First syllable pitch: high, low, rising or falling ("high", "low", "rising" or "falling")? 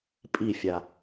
falling